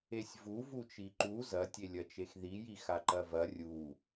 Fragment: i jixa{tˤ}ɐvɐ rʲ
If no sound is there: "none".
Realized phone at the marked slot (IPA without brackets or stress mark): ǃ